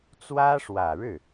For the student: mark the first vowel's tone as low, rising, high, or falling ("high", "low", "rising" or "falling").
high